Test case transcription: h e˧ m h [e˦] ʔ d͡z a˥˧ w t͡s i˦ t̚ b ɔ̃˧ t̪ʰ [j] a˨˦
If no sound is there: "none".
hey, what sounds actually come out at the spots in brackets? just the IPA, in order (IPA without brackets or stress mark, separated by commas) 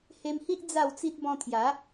i˦, j